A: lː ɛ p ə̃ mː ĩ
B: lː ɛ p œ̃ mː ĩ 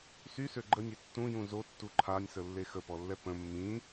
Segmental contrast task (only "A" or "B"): A